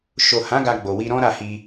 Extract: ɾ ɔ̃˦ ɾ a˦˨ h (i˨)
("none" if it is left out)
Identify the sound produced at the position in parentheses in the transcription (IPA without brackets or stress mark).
i˧